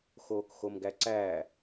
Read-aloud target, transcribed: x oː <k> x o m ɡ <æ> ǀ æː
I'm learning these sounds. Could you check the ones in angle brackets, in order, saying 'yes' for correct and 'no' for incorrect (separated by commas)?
yes, yes